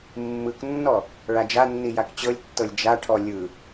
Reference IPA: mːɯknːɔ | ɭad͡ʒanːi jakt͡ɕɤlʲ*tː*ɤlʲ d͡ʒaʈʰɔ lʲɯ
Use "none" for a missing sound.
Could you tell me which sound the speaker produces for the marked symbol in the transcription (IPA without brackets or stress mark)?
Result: tː